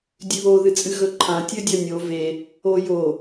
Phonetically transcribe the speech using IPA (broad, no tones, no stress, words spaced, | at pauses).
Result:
dʲʉβo ðɨt͡sʼɨɣɵǃʰã tʲɵdʲɐnʲo ve | ojo